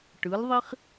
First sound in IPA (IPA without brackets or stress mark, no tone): ʈ